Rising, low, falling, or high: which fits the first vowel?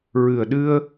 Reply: low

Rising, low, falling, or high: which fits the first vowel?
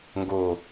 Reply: low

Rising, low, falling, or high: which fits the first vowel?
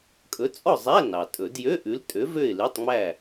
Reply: rising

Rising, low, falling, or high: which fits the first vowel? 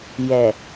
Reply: low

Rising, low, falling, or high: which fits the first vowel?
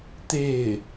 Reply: falling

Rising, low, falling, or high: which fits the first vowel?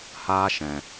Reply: high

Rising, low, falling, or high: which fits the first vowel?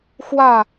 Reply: falling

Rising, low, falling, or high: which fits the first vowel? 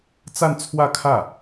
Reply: falling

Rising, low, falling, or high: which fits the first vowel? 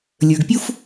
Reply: low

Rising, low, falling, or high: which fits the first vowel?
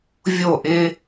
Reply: falling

